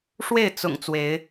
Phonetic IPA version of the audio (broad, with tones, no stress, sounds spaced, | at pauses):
ʂ w e˥˨ ɪ̯ t͡s ʊ̰˨˩ ŋ t͡s w e˨˦ ɪ̯